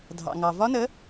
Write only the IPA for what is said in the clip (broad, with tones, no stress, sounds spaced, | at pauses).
dʱ ɑ̰˩ ŋ ɑ˩ v ɒ˦˥ n ə˨˥